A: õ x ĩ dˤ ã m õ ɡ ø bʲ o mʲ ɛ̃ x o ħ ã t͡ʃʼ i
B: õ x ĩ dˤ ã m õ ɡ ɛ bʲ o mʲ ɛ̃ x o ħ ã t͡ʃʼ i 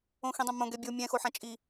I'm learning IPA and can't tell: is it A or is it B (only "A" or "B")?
B